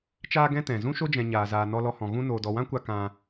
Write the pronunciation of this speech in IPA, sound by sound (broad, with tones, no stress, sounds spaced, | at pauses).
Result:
t͡ʃ aː˦ ɡ ɛ̃˦ t ɛ̃˨ z ũ˦ ʃ o˦ d͡ʒ ɛ̃˨ ɲ aː˨ z aː˨ n ɔ˧ l ɔ˧ h ɔ̃˨ ɣ ũ˦ n oː˨ d ɔ˨ w ã˦ kʷ a˧ k ã˧